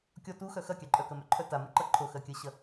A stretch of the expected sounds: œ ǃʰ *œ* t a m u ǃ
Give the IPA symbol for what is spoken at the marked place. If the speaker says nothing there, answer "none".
œ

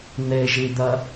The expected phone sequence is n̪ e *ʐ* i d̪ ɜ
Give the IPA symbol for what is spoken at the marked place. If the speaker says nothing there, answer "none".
ʒ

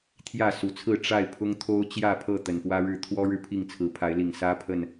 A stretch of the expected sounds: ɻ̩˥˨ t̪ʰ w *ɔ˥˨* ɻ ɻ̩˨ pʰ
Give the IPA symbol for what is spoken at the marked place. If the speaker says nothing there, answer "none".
ɔ˦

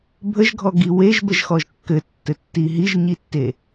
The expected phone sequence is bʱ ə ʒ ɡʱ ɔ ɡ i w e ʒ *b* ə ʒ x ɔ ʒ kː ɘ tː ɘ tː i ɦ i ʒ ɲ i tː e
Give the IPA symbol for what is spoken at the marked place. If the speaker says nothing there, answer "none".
b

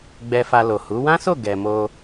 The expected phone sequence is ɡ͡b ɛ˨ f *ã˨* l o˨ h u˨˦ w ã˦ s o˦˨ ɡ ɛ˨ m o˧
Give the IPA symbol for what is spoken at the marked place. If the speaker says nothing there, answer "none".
a˨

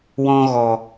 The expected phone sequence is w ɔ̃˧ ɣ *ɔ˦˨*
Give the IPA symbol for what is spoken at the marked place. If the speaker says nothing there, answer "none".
ɔ˨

